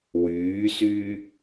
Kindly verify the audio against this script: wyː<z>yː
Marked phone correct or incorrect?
incorrect